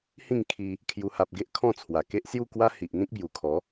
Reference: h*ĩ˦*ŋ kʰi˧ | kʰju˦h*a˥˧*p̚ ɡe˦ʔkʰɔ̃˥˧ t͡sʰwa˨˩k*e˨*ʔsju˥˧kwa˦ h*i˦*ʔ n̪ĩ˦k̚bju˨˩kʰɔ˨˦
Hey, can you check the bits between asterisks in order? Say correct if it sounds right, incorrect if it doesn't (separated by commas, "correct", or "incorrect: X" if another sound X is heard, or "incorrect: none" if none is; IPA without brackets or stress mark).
incorrect: ĩ˥˧, incorrect: a˦, incorrect: e˦, incorrect: i˨